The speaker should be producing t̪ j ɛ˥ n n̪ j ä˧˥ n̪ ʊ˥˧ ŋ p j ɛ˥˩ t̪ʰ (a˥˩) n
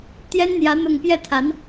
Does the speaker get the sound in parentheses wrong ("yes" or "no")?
yes